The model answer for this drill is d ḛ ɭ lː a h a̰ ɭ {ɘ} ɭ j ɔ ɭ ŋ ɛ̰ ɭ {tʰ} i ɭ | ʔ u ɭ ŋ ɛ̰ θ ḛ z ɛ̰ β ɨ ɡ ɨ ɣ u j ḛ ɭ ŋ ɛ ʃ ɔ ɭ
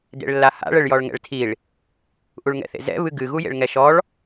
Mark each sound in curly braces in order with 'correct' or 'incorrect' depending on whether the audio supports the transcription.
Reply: correct, correct

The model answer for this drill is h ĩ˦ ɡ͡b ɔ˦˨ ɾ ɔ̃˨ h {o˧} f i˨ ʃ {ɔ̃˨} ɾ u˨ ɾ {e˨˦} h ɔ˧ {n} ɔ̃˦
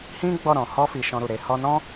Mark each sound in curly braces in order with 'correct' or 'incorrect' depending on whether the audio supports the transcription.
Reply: incorrect: ɔ˧, incorrect: ɔ̃˧, correct, correct

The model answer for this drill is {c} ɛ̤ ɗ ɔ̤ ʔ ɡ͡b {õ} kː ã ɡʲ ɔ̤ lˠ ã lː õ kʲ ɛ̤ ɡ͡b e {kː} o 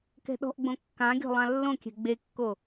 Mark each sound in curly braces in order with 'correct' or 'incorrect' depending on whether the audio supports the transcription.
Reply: incorrect: k, correct, correct

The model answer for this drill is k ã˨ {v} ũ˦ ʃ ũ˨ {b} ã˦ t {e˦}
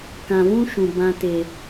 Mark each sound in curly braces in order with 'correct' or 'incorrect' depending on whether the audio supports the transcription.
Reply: correct, correct, correct

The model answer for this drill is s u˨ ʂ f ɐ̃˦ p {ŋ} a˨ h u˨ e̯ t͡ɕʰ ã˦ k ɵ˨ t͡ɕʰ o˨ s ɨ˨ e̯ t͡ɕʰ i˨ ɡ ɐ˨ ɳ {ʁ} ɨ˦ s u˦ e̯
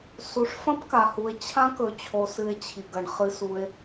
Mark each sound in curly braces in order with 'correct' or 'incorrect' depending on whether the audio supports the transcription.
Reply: incorrect: k, incorrect: χ

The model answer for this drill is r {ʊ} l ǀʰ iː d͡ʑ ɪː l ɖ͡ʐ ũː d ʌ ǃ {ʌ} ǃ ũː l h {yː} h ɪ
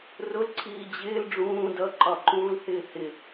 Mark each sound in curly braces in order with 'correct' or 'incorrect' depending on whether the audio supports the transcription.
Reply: correct, incorrect: ɒ, incorrect: ɪː

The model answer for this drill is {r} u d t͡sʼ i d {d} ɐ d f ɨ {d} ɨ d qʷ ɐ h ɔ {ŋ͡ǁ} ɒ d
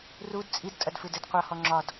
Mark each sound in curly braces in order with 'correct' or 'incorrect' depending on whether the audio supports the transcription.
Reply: correct, incorrect: tʼ, correct, correct

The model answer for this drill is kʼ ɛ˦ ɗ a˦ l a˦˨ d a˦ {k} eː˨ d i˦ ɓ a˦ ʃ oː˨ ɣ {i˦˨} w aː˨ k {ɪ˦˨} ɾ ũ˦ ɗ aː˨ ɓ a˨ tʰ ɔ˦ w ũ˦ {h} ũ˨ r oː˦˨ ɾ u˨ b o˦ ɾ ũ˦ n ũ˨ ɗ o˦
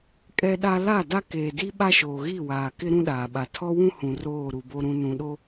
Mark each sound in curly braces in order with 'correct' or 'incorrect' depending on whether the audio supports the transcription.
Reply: correct, correct, incorrect: ɪ˦, correct

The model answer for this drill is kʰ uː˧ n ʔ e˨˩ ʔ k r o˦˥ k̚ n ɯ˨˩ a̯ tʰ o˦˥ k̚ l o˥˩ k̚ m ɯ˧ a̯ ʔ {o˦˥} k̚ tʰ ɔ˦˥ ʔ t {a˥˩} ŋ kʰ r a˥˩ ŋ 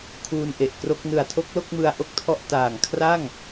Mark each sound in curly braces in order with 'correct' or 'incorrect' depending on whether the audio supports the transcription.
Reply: correct, incorrect: a˨˩

